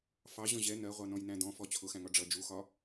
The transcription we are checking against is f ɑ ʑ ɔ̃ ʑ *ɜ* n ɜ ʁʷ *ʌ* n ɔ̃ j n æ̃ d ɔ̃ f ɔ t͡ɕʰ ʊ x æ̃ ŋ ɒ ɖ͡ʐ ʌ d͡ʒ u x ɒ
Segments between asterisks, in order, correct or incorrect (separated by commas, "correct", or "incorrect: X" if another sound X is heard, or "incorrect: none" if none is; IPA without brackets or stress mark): incorrect: ɛ, incorrect: ɑ